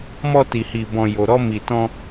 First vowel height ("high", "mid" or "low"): mid